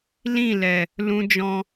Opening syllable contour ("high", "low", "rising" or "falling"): falling